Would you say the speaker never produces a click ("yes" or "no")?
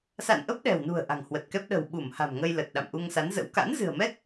yes